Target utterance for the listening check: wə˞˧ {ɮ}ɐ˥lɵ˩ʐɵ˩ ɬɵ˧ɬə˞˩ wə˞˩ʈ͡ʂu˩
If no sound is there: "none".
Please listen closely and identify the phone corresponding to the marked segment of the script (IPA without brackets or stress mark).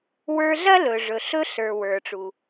ɮ